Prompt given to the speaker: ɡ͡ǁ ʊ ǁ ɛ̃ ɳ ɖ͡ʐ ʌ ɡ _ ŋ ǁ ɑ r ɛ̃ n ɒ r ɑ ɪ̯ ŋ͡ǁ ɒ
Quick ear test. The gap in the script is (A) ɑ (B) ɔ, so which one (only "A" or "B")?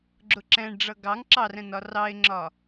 A